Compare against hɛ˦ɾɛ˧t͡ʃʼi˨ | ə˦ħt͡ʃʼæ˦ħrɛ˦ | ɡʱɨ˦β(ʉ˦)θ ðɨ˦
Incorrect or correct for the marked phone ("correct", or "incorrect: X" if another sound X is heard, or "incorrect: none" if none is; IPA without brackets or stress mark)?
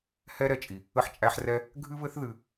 incorrect: ɘ˦